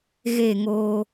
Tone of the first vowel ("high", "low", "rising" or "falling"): falling